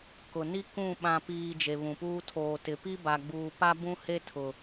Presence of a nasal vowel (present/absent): present